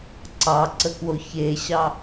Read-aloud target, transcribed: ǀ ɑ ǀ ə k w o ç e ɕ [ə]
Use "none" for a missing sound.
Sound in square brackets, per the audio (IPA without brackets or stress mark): ɑ